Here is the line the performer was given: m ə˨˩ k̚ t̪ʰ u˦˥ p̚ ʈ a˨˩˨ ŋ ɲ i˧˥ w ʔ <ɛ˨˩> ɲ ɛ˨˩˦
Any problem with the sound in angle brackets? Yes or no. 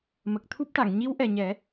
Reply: no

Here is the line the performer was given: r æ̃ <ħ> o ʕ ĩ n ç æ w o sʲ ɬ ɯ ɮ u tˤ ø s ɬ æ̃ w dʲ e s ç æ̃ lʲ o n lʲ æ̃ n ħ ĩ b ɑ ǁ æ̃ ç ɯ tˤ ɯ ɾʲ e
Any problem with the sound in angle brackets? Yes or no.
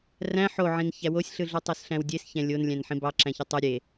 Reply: no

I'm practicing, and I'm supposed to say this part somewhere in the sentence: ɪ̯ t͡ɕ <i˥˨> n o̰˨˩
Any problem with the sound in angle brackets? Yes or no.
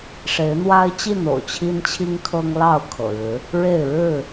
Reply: no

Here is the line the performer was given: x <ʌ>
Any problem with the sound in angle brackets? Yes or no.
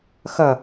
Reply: no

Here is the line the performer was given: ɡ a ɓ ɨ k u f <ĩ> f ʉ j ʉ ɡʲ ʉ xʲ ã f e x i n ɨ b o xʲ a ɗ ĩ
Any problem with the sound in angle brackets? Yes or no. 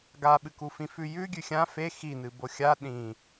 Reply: no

